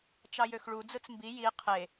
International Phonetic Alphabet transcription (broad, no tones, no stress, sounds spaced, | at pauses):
t͡ʃ ɑ j ø x ɭ u d͡z ɯ t͡s m b i j i qʰ e